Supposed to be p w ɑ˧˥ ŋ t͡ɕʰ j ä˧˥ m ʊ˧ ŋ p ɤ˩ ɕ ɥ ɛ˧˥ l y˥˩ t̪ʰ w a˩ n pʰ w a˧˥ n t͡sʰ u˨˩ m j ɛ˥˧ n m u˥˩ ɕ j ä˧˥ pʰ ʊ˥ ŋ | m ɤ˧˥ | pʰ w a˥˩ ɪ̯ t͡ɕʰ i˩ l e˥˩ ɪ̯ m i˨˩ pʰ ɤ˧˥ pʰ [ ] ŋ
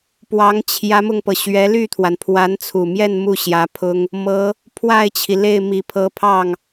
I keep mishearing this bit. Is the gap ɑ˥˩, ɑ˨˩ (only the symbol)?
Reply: ɑ˥˩